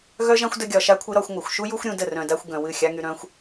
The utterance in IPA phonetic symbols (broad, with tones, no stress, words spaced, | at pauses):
ɣœ˦ʒã˦xʷ də˧ɡʲɒ˨ʃa˧kʷʰɨ˧ ɾɒ˧xʷ ŋʷa˨xʷʃu˦ju˦xʷ ɾʲũ˧ də˦˨ rœ̃˨da˧xʷ ɡœ̃˨wɨ˦˨xʲa˦ŋy˧ ɾœ̃˧xʷ